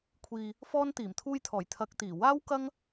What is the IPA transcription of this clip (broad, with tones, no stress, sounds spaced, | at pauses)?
kʷʰ iː˧ | f ɔː˥ n t̪ iː˨˩ m t̪ʰ uː˧ j t̪ʰ ɔː˨˩ j t̪ʰ ɐ˨˥ k̚ t̪ iː˨˩ w aː˥ w k ɐ˥ ŋ